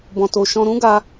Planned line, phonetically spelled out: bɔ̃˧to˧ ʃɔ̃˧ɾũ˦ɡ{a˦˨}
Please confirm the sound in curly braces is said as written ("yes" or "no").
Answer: no